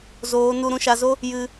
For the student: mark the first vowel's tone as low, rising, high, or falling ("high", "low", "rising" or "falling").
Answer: rising